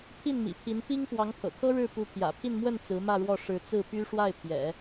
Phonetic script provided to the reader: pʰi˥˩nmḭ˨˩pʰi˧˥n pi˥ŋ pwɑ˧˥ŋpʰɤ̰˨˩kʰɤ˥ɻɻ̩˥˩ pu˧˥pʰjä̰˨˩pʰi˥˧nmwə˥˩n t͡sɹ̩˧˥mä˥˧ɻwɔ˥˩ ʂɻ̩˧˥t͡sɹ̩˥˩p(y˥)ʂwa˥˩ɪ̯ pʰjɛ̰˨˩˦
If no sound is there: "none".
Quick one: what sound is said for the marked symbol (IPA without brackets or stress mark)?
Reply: y˥